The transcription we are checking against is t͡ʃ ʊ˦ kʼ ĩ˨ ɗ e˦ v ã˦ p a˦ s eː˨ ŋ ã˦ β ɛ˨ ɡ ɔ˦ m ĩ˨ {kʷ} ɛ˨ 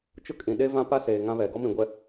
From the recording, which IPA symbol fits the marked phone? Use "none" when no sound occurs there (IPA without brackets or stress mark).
ɡʷ